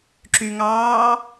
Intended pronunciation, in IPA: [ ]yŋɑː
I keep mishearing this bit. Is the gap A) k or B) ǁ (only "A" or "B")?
B